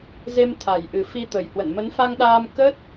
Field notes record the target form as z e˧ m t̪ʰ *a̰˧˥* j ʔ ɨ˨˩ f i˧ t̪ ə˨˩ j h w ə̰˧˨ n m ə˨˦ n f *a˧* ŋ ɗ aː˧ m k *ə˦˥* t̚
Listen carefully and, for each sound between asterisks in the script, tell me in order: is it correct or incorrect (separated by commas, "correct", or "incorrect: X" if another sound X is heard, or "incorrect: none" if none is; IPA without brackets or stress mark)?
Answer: incorrect: a˨˩, correct, correct